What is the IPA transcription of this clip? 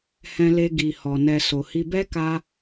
h ɛ̃˧ l e˧ ɡ i˨ h ɔ˨ n ɛ˨ s o˨ h i˧ b ɛ˦ k a˧

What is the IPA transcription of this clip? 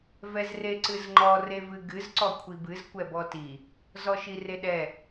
v ɛ z r e ǀ ɨ z ŋ͡ǃ ɔ r e v ɨ ɡ ɨ z ǀ ɔ kʷʰ i b ɨ z kʷ ɛ b ɔ t i | z ɔ ʃ i r e ɗ ɛ

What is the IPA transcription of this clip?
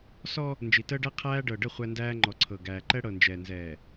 s ɔ˦ | n d͡ʒ i˨ t əː˦ ɖ æ˦ qʰ æː˦ ɖ ɤ˨ ɖ ə˦˨ χʷ æ˦ n d æː˦ ŋ͡ǃ ɔ˨ ǀʰ ɤ˨ ɡ æː˨ ǃ ɛ˦ ɽ ɤ˨ n d͡ʒ ɛː˨ n z ɛː˨

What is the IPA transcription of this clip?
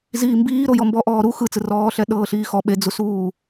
z iː m b iː ɾ o j ɔ m b ɔ ʔ ɔː ɾ u x ɯ t͡s ɯ r ɔː ɬ ɛ ɗ ɤː ɬ iː x ɔ ɓ e d͡z u s uː

